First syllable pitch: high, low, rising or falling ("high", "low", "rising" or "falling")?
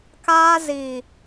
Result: high